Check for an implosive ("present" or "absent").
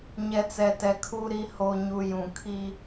absent